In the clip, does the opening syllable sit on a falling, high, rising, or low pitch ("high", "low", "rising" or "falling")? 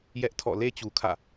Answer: high